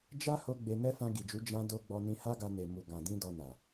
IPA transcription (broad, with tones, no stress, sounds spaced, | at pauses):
d͡ʒ a˦ h o˧ ɡ͡b e˧ n ɛ˦ f ã˧ ɡ i˨ d͡ʒ u˨˦ d͡ʒ ã˦ d o˦ ɡ͡b ɔ˧ n ĩ˧ h a˦ ɡ a˧ n e˨ m u˨ ɡ ã˨ d ĩ˧ d ɔ˧ n a˨